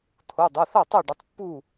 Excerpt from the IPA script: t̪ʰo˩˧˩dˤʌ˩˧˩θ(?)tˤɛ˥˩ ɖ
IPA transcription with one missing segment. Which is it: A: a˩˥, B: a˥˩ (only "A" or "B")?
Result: B